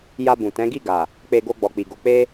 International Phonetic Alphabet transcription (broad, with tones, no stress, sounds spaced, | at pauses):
j a˧ b ũ˨ t ɛ̃˨˦ ɡ i˦˨ ɡ a˨ | k͡p e˧ ɡ o˧ ɡ͡b ɔ˨ k͡p i˨ ɡ o˨ k͡p e˧